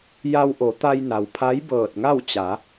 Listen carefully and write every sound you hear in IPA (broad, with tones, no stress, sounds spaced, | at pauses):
j a˧ w ʔ o˩˧ t̪ a˧ j n a˩ w pʰ a˧˥ j b ɤː˧˩ t̚ ŋ a˥˨ w t͡ɕ a˩˧